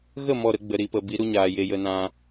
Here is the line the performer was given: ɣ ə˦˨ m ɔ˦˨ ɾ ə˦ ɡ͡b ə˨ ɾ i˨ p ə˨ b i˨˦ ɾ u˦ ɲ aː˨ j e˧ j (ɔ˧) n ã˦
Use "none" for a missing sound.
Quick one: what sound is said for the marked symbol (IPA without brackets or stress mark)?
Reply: ə˧